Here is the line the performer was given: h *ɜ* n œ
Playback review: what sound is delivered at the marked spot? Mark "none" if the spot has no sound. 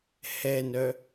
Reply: ɛ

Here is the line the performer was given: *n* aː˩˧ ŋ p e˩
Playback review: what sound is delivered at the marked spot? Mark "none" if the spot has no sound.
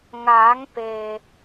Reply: ŋ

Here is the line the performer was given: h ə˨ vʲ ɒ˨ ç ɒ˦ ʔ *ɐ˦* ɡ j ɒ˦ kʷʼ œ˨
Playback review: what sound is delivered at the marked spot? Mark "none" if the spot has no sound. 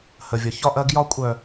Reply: ɐ˦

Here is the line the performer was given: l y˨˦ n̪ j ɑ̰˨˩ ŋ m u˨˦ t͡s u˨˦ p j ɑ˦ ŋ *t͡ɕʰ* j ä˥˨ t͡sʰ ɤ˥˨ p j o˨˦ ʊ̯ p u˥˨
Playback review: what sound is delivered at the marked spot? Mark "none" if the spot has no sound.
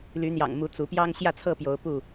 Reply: ɕ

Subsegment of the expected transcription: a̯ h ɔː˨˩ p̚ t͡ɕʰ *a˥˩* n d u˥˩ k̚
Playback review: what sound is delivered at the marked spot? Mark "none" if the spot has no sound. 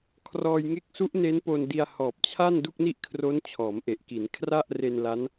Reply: a˥˩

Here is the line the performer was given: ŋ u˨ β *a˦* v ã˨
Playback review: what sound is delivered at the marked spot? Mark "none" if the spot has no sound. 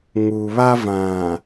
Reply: a˦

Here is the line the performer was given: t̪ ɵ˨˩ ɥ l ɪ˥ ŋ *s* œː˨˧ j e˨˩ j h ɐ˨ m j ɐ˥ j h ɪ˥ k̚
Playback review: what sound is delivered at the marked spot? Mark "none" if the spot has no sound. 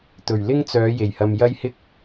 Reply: t͡s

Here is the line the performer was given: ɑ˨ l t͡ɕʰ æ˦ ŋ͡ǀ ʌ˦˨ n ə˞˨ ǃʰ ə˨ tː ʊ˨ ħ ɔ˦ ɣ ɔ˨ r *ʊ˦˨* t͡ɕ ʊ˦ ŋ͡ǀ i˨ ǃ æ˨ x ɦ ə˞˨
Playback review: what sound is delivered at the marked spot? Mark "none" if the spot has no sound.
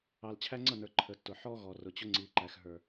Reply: ʊ˨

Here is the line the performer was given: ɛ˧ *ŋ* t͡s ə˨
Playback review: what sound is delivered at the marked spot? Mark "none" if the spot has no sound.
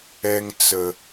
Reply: ŋ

